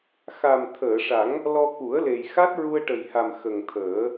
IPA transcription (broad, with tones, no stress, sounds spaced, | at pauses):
x a˨˩ m t̪ʰ əː˨˩˨ ʂ a˨˩˦ ŋ | l ɔ˧ k u˨˩˦ ə̯ l e˨˩ j x a˦˥ t̚ ɹ u˧ ə̯ ʈ ə˨˩ j h a˨˩ m x ə˨˩ ŋ t̪ʰ əː˨˩˦